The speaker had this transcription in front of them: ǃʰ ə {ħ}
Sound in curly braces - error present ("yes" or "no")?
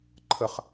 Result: yes